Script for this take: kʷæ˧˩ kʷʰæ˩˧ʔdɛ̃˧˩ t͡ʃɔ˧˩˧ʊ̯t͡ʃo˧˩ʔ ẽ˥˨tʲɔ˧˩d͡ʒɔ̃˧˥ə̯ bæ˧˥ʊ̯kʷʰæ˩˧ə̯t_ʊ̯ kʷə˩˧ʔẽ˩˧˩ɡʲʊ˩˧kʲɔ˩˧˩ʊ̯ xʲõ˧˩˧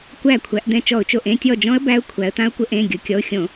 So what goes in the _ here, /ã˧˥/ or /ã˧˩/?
ã˧˥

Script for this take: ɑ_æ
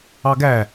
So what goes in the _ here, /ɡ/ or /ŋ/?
ɡ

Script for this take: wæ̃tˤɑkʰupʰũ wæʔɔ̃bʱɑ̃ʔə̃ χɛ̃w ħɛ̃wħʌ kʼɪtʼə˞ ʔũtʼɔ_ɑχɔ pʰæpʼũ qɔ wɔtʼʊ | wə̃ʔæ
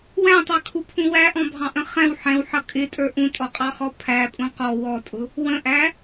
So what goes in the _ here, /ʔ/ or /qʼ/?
qʼ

